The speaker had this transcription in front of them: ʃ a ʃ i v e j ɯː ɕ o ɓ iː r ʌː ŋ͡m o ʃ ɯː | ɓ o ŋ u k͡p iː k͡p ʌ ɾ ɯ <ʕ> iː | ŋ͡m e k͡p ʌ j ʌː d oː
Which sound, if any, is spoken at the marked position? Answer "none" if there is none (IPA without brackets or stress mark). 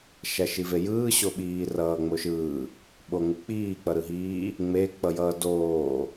ɦ